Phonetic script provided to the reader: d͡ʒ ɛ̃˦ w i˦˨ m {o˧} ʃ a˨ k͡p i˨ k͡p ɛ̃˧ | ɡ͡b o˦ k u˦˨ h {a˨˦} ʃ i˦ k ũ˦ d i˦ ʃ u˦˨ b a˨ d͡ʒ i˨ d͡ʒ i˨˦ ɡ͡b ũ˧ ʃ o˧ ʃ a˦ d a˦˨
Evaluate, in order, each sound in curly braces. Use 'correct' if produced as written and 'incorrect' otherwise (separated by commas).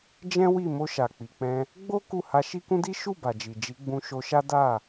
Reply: correct, incorrect